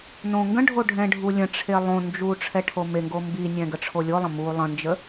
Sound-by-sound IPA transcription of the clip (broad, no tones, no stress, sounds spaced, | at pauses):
n õ ŋ ɡ ə̃ ɖʱ o ɖʱ ɛ̃ ɖʱ u lʲ ə̃ ʈ͡ʂʰ e lˠ õ n d͡ʒ u ʈ͡ʂʰ ɛ ʈʰ o m e ŋ ɡ o m b i nʲ ɛ̃ ɡ ə ʈ͡ʂʰ o lʲ o lˠ ə̃ m u lˠ ə̃ n d͡ʒ ə